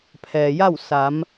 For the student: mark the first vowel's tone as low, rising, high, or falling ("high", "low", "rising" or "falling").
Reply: low